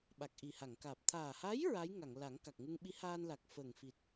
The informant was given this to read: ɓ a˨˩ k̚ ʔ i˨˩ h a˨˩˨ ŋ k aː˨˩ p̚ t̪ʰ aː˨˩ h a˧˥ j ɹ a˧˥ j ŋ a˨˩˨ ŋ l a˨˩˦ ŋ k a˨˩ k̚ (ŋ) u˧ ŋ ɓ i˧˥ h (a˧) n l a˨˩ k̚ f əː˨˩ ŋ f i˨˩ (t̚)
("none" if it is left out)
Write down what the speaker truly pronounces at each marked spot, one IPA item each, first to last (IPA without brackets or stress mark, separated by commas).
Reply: ŋ, aː˧, t̚